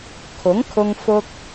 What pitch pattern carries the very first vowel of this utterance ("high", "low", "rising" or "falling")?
rising